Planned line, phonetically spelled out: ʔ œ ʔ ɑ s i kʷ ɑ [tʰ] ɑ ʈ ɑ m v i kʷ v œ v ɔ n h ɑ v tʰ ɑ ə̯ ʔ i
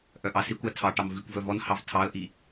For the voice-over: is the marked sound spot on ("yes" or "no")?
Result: yes